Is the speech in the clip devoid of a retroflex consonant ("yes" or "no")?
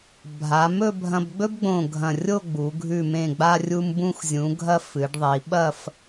no